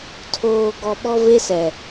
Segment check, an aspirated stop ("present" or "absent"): present